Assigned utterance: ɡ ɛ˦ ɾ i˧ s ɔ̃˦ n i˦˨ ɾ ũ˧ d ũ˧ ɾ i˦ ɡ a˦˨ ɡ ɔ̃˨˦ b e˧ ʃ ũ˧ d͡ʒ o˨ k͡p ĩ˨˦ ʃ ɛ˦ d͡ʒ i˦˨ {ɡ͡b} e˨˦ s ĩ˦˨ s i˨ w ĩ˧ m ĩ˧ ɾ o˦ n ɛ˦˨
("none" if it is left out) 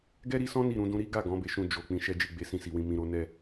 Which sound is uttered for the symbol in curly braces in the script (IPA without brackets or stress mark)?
ɡ͡b